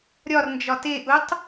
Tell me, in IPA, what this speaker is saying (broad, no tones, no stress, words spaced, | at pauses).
ɾʲɒrnd͡ʒɒ teʔutˤ